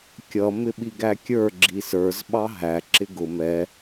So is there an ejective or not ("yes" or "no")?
no